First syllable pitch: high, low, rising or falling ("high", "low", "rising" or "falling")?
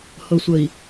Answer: low